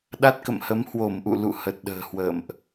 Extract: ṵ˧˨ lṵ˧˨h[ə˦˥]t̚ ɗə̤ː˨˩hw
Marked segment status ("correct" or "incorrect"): incorrect